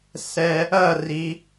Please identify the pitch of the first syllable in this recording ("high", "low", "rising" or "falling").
low